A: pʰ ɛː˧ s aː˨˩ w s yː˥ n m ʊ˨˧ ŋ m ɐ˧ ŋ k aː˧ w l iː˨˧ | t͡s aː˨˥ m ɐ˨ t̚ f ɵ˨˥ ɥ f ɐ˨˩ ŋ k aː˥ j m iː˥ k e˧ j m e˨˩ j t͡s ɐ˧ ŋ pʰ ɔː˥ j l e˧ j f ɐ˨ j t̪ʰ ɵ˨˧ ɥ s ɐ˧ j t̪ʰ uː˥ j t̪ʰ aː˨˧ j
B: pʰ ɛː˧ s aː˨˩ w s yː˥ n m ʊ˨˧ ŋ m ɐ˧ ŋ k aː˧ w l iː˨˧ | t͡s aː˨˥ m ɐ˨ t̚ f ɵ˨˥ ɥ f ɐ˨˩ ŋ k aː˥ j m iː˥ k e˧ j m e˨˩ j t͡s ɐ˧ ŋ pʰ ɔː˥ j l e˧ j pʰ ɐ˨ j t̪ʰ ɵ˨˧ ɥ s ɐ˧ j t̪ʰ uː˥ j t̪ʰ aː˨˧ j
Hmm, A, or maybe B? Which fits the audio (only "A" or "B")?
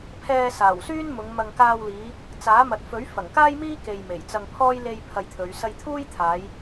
B